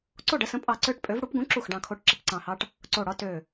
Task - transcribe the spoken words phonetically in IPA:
ǀ o˥˨ ɖ ə˦ s ə̃˨˥ pʼ ɑ˧˩ ǀ ø˥˨ ʈ pʼ ø˨˥ v ɽ u˨˥ p ɡ ũ˨˥ ǁ u˧˩ x ɖ ɑ̃˧˩ kʰ o˨˥ ʈ ǁ ə˧˩ p ǀ ɑ̃˧˩ h ɑ˦ ʈ | ǀ o˧˩ ɽ ɒ˦ t ø˧˩

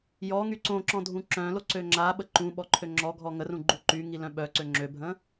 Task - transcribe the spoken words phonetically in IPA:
j ɔ ŋ y ǀ õ ǁ ɔ̃ dʱ ũ ǁ œ̃ l o ǀ ø ŋ͡ǁ a ɓ ə ǃ ũ ɓ ɔ ǃʰ ø ŋ͡ǁ ɔ ɡʱ ɔ ŋ ə r ũ ɡ͡ǃ u ǃ y ŋ i l œ̃ ɓ œ ǀ ø ŋ͡ǁ ø bʱ ə̃

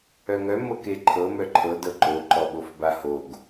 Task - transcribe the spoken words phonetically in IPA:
œ ŋ œ m ɤ k e ǃʰ ɤ m œ ǃʰ ɤ d ɤ ǃ o ǃ ɔ ɓ o f b a h o ɡ

